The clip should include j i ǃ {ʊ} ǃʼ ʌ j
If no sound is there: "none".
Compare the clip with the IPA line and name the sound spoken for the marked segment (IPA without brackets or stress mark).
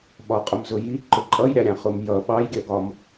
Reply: ʊ